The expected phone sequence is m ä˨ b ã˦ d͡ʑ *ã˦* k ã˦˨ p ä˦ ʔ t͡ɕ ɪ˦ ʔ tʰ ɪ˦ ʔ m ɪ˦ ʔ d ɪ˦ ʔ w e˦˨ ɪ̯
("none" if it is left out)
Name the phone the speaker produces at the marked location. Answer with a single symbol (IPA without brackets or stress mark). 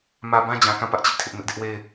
ã˨